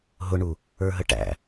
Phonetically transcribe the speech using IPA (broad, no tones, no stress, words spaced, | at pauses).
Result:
ɦʊɳu | ə˞ɦəʈæ̰